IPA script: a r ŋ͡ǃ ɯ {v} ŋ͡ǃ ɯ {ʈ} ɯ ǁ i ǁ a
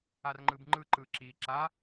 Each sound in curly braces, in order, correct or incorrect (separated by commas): incorrect, incorrect